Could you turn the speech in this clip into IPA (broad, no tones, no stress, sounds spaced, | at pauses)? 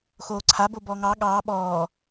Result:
x oː ǀʰ a b o b ɔː ŋ ɑː ɠ ɑː ɓ ɔː